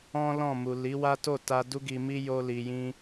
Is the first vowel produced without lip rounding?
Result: no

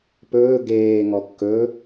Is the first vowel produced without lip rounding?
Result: no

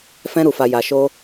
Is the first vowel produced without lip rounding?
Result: yes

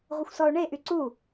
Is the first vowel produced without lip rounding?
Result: yes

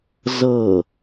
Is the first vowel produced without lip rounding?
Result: yes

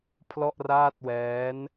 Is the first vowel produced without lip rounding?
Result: no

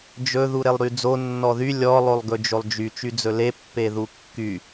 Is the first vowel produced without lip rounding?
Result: no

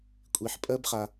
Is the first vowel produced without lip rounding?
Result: yes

